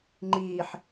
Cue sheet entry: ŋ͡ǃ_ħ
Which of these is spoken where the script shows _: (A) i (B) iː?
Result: B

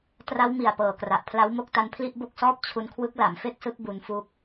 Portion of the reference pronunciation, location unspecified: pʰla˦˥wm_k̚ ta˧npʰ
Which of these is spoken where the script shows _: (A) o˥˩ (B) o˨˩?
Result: A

